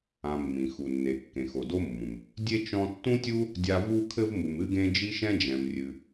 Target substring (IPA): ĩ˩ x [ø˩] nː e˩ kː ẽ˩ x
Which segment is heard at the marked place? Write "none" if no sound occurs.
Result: u˩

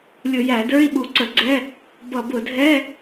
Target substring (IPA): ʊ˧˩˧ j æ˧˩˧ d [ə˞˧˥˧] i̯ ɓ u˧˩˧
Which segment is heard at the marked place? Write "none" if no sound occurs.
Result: ə˞˧˥˧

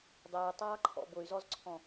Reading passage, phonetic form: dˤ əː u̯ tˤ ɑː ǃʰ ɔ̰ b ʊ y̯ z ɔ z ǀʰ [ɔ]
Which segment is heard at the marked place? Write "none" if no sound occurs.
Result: ɔ̃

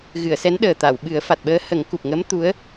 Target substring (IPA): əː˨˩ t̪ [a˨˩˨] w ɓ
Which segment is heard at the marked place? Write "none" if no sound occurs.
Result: a˨˩˨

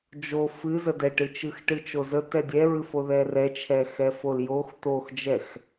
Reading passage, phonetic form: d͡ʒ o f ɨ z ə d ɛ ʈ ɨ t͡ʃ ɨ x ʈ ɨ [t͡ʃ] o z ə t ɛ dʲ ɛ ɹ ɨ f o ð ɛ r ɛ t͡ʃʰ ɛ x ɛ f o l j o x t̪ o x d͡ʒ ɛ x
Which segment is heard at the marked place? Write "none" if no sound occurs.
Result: t͡ʃ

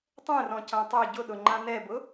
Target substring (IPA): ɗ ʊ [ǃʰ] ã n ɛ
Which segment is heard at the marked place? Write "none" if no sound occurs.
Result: ŋ͡ǃ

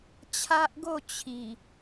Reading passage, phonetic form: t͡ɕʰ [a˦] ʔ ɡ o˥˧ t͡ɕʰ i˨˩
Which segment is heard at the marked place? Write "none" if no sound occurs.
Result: a˦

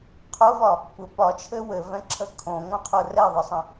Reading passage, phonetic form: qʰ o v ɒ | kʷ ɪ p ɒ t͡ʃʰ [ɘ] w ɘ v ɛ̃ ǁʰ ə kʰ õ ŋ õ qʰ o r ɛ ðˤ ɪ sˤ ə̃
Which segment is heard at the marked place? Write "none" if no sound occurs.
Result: ɘ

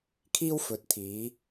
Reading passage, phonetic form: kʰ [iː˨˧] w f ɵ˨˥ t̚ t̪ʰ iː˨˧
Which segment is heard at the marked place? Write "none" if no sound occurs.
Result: iː˥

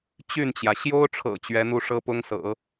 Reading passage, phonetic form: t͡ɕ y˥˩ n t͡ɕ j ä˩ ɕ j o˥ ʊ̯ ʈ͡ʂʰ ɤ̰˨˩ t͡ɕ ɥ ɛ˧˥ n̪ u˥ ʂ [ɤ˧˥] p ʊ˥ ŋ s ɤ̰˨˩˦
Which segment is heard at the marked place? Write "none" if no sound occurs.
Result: ɤ˥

